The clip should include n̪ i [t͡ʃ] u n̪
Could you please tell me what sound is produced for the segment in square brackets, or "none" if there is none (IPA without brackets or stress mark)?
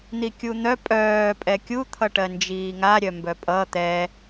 kʲ